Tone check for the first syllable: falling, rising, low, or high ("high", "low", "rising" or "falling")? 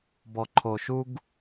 low